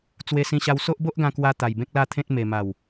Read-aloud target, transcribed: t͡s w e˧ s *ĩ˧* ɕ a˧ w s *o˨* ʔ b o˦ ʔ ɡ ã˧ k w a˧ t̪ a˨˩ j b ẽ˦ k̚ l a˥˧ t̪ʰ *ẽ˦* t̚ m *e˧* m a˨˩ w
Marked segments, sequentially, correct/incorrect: correct, incorrect: o˦, correct, incorrect: e˨˩

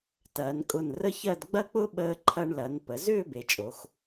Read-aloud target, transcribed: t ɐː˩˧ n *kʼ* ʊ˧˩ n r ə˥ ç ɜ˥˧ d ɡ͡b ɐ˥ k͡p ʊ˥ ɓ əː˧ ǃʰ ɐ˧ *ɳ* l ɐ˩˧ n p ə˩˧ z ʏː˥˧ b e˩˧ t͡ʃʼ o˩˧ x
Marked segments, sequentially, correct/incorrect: correct, correct

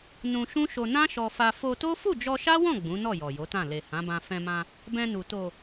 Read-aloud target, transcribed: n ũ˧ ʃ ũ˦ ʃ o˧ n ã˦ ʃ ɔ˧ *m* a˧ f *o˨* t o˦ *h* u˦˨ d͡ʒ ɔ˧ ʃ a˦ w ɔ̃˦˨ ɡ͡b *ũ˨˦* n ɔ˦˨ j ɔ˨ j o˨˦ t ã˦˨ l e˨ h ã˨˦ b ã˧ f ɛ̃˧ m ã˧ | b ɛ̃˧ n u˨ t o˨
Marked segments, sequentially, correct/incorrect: incorrect: f, incorrect: o˧, incorrect: f, correct

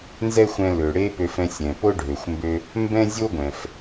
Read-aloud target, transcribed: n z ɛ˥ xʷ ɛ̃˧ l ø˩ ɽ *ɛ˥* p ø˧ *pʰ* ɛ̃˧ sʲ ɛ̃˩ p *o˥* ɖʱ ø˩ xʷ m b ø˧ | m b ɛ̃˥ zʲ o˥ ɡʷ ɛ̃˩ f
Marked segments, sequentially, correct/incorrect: incorrect: e˥, incorrect: f, correct

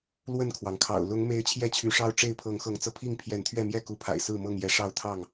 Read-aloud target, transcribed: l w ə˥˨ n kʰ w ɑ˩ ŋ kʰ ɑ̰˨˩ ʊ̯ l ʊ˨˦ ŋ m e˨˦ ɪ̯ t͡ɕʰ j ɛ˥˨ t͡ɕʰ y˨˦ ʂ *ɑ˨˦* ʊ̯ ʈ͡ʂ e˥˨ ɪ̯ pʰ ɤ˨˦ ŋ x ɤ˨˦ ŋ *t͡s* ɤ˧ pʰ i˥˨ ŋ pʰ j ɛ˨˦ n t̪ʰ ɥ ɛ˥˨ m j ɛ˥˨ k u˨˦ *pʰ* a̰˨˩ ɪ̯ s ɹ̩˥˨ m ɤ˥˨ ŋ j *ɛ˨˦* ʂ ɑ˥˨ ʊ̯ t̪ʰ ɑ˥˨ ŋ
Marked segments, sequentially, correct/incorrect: incorrect: ɑ˦, correct, correct, correct

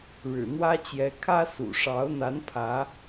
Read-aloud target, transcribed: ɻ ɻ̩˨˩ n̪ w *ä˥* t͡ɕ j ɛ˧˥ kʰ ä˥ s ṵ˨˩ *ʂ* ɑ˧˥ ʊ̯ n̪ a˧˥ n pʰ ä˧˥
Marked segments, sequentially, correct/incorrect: correct, correct

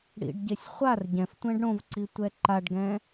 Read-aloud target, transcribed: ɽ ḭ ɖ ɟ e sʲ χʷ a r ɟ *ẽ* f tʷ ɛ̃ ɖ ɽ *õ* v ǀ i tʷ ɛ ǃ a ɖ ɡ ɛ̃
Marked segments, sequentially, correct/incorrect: incorrect: ɛ̃, correct

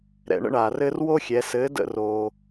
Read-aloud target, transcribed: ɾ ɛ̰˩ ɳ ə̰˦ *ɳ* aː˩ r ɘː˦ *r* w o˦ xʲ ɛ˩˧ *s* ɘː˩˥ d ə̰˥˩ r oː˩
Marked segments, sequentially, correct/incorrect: correct, correct, correct

